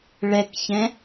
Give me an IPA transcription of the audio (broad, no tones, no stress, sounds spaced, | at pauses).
ɭ ɛ k ç ɛ̃